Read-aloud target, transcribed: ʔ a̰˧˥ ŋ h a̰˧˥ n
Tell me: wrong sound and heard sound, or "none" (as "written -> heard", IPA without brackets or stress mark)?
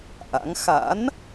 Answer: h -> x